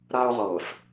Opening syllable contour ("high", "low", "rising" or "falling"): high